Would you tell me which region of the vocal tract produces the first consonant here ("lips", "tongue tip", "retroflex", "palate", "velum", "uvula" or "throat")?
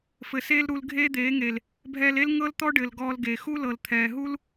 lips